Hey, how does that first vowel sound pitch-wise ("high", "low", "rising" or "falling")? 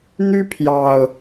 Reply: high